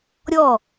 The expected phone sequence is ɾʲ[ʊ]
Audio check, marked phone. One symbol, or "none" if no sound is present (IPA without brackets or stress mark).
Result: ɔ